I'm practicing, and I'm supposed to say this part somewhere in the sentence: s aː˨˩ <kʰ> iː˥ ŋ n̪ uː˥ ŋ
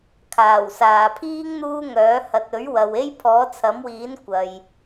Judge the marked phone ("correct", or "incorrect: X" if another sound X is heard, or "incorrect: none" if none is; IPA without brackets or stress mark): incorrect: pʰ